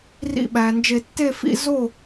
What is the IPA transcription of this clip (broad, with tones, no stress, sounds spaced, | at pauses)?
r ḭ˧˩ ɓ æ˩ n d͡ʒ e˨˩˦ tː e˥˨ f ḭ˥˨ z o˥˨